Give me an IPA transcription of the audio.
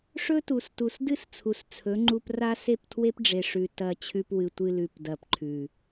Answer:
ʂ ɵ˦ t u˨ s t u˨ s d ɨ˦ s t͡sʰ u˨ s t͡sʰ ɵ˨˦ ŋ͡ǃ u˧ p r a˦ s e˦˨ p tʰ w e˦ p ɖ͡ʐ e˨ ʂ ʉ˨ t ɐ˨ t͡ɕʰ ʉ˧ p w ɨ˨ tʷ ɨ˧ l ʉ˨ p d ɐ˨ p ǃʰ ʉ˨

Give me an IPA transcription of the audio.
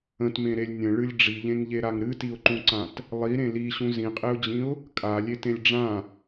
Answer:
ə̃ t m ẽ ɾ e lʲ nʲ ə̃ ɭ ɨ lʲ ɖ͡ʐ i ʎ ẽ ŋ ʎ e ɾ a ŋ ɾ ɨ t i ʊ̯ ǃ ũ ǀ ã t | lˠ i ɾ ẽ l i ɕ ũ z ĩ qʼ e ʊ̯ d͡ʑ ĩ ʊ̯ | kʼ a lʲ e t ẽ lʲ ɖ͡ʐ ã

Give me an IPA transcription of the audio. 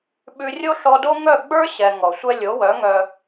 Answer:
ɓ ʉ˧ rʲ o˦ ɬ ɔ˧ d o˦ ŋ œ˦˨ ɡ͡b ə˞˦ ɕ ɛ˨ ŋ ɔ˨ sʷ ɛ˧ lʲ o˨˦ w œ˨˦ ŋ œ˧

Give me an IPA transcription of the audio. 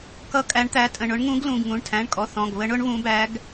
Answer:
k ʌ˧˥ kʼ æ˧˥ ɳ t̪ æ˧˥ tʼ ə̃˩˧˩ ɳ ʊ˧˥ ɳ ŋ ũ˧˥ ɡ l ũ˩˧˩ ɡ ŋ ũ˩˧˩ ɳ tʰ æ̃˩˧˩ ɳ kʼ ɔ˩˧˩ θ ɔ̃˩˧˩ ɡ β ə˧˥ ɳ ʊ˧˥ ɳ β ũ˧˥ b æ˧˥ ɡ

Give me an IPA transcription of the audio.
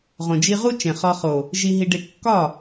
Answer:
ʁ õ˨ d͡ʒ i˧ ʁ u˦ t͡ʃ ẽ˨ χ ɒ˧ χ o˨ | ʒ i˧ ɦ i˧ ɖ e˧ kː ɒ˦˨

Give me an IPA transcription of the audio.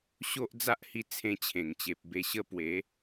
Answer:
ɕ o˦ ʔ d͡z a˦ ʔ h i˧ t͡sʰ ẽ˧ t͡ɕʰ ẽ˨˩ ŋ t͡ɕ e˨ p̚ b e˧ ɕ ə˥˧ p w e˨˦

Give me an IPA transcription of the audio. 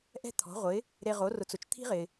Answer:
ʔ ɛ̤˥ t̪ʰ ɔ̤˩˥ ʁʷ ɪ˩˥ | ɾ e˧ ʁ o˩˥ r ʊ˩˥ t͡s ʊ˩ t͡ʃ t̪ʰ i̤˥ ʁ ɪ˩

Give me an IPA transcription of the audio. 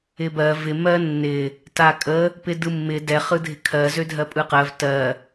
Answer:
ɪ b ɜ v ɪ m ɜ nː ɪ | t a kʼ ə | p ɪ d ɯ mː ɪ d ɛ χ ɯ dʱ ɪ kʰ ɜ z ø dʱ ɜ pʼ ɯ q ɜ v t ɜ

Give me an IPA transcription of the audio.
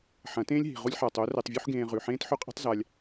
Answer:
ħ ɐ̃˨˦ t ẽː˦ lʲ ɦ i̤˨ ʁ u˧ lʲ ħ a˨ tˤ o˨˦ r e˧ tˤ vʲ u˦ ħ ɡ ẽː˧ ʁ ʉ˨ ħ ẽː˦ t ħ ɵ˦ qʼ i̤˦ tˤ z a˧ lʲ

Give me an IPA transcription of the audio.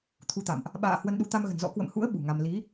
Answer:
t̪ʰ u˨˦ t̪ a̰˧˨ m ʔ | ɓ a̰ː˧˨ h w ə˧ n ɗ u˨˦ t̪ a˧ m ɣ ə̤˨˩ n z ɔ̰˧˥ k w ə̰˧˨ m h ṵ˧˥ ə̯ ɓ ṳ˨˩ ŋ a˧ m l i˨˦

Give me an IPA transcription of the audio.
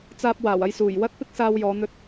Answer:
t͡s aː˧ p̚ w aː˨˩ w ɐ˧ j s uː˨˩ j w ɐ˥ t̚ p ɪ˥ k̚ s aː˧ w j ɔː˨˧ n̪ ɵ˧ t̚

